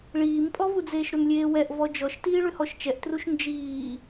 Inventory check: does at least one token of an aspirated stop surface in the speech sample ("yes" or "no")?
no